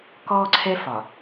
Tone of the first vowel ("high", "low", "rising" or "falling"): high